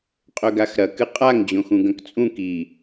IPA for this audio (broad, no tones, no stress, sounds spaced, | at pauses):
qʼ ɵ ɡ a x ɾ ɐ k ɨ qʼ a ŋ d͡ʑ õ x ũ ɡ ɐ̃ k t͡sʼ ũ k i